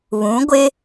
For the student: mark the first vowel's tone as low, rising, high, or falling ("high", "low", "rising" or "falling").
rising